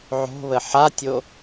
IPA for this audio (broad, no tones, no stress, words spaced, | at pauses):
ʕo̤βə ħatʲo